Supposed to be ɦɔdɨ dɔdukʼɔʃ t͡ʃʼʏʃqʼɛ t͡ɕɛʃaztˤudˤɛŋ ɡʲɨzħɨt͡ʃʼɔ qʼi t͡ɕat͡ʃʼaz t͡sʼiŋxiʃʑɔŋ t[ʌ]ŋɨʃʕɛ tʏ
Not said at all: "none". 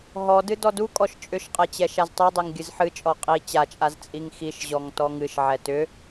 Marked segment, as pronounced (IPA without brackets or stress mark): ɔ